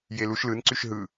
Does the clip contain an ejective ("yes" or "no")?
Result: no